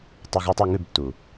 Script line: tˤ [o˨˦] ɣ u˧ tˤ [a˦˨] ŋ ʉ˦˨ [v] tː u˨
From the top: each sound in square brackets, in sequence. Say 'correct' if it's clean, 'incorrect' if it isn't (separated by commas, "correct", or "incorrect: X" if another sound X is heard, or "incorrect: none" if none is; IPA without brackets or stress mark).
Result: incorrect: o˧, correct, incorrect: b